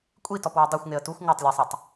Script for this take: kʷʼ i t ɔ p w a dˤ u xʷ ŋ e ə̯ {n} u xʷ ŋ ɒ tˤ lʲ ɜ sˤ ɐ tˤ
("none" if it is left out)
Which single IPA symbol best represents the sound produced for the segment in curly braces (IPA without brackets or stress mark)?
t